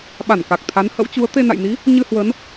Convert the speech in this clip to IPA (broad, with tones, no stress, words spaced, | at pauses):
ɓa˧˩nka˨˩k̚t̪ʰa˨˦n hə̰˧˥wt͡ɕu˨˦ə̯ t̪e˧na̰˧˨jni˨˦ | ɲɨ˧hwə˨˦n